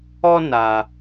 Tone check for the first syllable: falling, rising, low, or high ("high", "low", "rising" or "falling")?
high